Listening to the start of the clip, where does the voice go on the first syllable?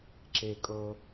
low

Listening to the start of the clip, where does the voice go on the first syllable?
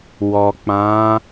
low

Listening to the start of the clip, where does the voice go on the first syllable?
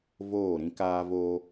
falling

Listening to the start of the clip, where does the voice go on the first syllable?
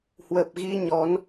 low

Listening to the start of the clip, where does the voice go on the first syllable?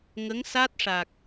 rising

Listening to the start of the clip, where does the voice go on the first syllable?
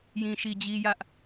low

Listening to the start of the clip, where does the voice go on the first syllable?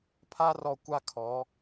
high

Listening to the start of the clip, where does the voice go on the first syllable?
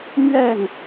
falling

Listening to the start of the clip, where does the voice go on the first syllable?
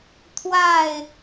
falling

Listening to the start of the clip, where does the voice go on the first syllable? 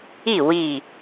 falling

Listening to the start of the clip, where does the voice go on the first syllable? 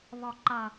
falling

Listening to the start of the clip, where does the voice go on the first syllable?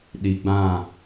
low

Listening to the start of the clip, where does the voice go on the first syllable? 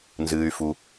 high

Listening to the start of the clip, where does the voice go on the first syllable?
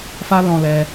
high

